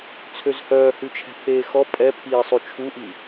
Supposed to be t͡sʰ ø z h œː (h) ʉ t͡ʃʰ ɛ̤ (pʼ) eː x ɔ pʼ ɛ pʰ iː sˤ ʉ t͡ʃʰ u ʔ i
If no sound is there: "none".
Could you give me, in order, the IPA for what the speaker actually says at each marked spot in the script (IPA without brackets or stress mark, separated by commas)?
h, pʰ